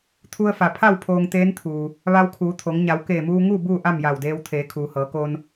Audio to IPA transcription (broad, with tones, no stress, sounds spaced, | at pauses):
t̪ʰ u˧ ə̯ f a˩ pʰ a˥˨ w pʰ oː˧ ŋ t̪ eː˧˥ n t̪ʰ uː˩ | ʋ a˧ w kʰ uː˩˧ t̪ʰ o˩˧ ŋ ɲ a˩˧ w k eː˧˩ m uː˧ ŋ uː˥˨ b uː˥˨ ʔ a˥˨ m j a˧˩ w d eː˧ w t̪ʰ eː˩˧ kʰ uː˩ h ɤː˩˧ k o˧ n